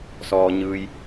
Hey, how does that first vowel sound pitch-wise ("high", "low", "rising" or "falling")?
low